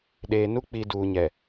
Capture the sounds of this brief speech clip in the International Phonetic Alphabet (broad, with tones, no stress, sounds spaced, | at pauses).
ɗ eː˨ n u˦ k͡p i˨ d uː˨ ɲ ɛ˨